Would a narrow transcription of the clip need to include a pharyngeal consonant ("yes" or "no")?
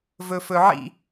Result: yes